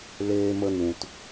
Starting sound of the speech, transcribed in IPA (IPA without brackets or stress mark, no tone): l